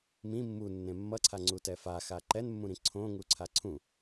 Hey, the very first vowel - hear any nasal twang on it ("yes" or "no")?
yes